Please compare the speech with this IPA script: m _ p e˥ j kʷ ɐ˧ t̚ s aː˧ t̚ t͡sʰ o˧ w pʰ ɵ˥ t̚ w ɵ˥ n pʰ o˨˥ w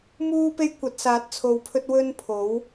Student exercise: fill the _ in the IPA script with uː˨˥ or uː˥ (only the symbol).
uː˥